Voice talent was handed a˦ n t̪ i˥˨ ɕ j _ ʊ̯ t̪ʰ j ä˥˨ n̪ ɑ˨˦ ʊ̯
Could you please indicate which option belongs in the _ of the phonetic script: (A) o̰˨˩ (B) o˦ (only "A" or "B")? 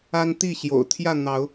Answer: A